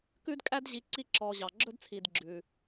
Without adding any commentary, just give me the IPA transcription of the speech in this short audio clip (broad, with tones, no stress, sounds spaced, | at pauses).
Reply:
k ʉ˦ d kʼ æ˦ d ʑ i˨ ǀ i˦ ǁ ɔː˨ ʑ ɑ˩ ɡ͡ǁ ɵ˦ d t͡sʰ i˩ d ɡ͡ǁ ʉː˩